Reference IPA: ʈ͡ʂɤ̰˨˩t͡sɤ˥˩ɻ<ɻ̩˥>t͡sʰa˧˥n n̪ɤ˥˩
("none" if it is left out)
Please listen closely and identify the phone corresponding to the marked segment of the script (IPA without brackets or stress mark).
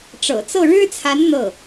ɻ̩˥